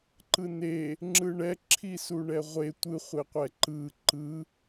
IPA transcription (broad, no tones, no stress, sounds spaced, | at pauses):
ǃ ɯ n e | ŋ͡ǁ ɯ ɳ ɛ ǁʰ i s u ɳ ɛ ʁʷ e tʷ ɯ χʷ e qʷ ɛ ǃ ɯ ǃ ɯ